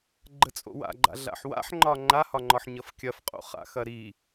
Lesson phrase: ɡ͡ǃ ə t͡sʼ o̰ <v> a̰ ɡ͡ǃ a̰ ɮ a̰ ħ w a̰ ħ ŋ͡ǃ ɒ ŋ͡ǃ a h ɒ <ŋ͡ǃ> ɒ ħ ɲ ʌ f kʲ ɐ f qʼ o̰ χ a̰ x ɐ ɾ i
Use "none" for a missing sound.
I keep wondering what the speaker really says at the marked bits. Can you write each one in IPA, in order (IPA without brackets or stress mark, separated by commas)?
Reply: w, ŋ͡ǃ